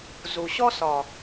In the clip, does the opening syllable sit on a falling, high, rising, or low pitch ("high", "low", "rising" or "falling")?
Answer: low